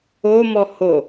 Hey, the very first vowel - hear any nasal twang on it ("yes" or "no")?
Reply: no